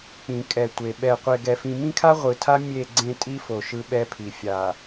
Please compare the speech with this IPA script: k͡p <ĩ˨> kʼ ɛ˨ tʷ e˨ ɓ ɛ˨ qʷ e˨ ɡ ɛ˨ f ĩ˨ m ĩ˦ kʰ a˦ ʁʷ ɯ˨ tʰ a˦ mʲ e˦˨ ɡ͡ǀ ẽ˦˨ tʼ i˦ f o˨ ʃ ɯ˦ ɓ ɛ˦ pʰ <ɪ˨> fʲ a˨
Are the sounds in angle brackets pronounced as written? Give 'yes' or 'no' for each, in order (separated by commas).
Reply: yes, no